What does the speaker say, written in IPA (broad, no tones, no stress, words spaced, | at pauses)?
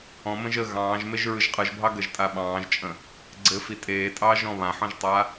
ɔ̃ mə̃ʒə ɣɑ̃ːʒ meʒɹɯʒqʼɯʒbʱɑ ɡəʒtʼaɓɑ̃ːʒt͡ʃʼə̃ | ɡ͡ǀɘfi tʼeːtʼɑːʒɔ̃ βãħɔ̃ʒtˤa